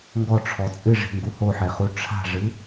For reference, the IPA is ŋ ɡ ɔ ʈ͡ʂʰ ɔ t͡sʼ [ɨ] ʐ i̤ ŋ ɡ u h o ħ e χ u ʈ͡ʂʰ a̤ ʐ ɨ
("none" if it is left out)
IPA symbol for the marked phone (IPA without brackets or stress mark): ɨ